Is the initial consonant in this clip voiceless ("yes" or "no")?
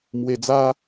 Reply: no